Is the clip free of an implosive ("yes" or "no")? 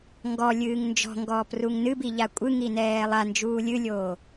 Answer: yes